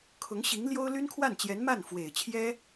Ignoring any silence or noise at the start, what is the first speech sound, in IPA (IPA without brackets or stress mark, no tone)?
kʰ